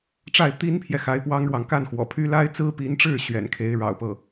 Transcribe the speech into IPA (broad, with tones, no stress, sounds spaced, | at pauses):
ʈ͡ʂ a˥˩ ɪ̯ t̪ i˥ n pʰ j ɛ˨ x a˧˥ ɪ̯ p w ɑ˥ ŋ ɻ w ɑ˨ ŋ k a˥˩ n x w ɔ̰˨˩ pʰ y˥ l a˥ ɪ̯ t͡s ɹ̩˥ p i˧˥ n ʈ͡ʂ ɻ̩˥˩ ɕ ɥ ɛ̰˨˩ n kʰ e˧˥ ɪ̯ ɻ ɑ̰˨˩ ʊ̯ p ɤ˥˩